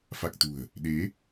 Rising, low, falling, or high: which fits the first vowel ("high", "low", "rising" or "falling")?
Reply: low